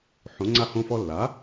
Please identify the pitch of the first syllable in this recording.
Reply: rising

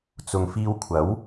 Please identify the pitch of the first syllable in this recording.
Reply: low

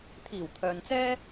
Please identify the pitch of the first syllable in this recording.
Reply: low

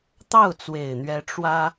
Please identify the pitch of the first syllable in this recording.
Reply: falling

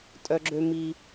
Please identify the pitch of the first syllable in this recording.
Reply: high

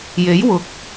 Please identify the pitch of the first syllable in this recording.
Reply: rising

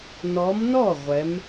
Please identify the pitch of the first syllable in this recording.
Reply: rising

